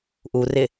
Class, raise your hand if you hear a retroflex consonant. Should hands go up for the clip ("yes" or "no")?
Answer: no